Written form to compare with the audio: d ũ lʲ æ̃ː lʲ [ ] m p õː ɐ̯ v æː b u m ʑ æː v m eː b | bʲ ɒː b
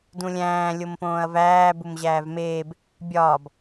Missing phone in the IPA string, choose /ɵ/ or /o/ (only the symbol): o